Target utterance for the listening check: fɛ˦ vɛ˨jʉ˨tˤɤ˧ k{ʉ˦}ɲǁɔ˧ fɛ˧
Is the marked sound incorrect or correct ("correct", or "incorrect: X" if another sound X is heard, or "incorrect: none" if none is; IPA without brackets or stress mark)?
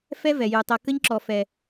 incorrect: ə˦